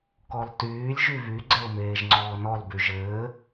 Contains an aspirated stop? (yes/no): no